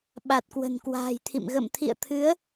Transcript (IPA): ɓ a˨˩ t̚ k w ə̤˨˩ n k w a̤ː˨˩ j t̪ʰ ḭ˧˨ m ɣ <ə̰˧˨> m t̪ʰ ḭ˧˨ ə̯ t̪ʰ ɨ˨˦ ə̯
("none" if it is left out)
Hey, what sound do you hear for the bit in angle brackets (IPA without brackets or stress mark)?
ə̰˧˨